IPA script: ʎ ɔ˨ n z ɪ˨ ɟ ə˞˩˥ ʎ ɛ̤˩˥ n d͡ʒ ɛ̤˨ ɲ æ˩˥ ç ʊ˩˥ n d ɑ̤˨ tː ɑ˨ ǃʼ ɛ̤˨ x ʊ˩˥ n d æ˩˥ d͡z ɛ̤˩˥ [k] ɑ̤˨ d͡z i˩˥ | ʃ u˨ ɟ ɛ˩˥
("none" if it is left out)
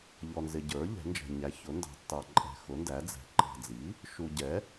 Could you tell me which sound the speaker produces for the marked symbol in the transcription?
ǃ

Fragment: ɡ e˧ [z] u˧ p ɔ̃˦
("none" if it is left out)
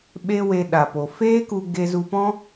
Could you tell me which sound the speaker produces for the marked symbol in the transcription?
z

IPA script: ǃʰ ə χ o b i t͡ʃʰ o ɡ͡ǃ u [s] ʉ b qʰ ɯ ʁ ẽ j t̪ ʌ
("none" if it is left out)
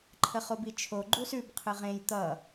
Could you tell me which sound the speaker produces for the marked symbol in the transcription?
s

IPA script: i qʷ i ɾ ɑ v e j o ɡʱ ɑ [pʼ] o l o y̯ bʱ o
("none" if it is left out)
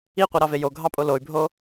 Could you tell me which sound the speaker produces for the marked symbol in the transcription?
pʼ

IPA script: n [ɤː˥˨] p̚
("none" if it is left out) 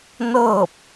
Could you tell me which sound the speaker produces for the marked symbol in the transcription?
ɤː˥˨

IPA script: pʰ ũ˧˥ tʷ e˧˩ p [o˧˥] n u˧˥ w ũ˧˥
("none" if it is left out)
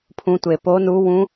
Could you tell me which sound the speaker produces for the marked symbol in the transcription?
o˧˥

